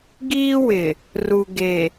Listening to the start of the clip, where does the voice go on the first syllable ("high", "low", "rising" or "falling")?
high